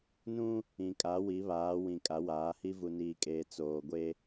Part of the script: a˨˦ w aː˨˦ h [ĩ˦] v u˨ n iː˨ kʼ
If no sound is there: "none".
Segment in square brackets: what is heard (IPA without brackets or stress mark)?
i˦